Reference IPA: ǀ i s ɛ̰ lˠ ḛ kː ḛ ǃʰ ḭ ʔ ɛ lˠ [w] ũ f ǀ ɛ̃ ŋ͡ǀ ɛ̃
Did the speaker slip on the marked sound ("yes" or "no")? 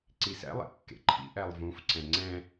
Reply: yes